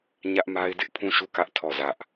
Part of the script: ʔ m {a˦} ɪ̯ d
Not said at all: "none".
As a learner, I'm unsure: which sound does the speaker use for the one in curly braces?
a˦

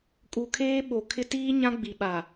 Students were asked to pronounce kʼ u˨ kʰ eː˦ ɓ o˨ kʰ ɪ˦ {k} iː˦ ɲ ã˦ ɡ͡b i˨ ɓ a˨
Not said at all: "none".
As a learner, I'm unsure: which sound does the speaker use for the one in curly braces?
t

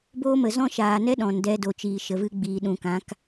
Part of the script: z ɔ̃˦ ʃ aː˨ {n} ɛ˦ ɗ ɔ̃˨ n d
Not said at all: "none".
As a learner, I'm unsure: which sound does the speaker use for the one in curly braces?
n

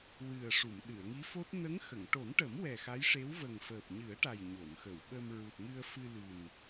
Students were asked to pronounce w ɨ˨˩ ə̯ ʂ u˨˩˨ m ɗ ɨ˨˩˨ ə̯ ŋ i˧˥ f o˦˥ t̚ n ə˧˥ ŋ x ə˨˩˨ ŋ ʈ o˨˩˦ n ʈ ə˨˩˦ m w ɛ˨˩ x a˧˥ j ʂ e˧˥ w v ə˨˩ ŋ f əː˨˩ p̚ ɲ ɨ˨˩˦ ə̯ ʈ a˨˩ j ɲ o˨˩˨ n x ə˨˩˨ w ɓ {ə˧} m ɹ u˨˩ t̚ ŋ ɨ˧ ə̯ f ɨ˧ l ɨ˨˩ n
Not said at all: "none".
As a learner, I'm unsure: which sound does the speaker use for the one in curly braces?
ə˧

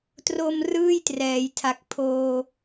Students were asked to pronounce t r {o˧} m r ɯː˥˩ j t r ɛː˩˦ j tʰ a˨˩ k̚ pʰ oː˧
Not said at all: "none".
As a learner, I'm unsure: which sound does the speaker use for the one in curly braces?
o˧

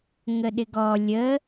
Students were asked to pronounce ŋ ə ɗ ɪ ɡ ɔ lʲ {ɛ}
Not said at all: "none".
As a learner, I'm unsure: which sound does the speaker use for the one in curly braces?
ə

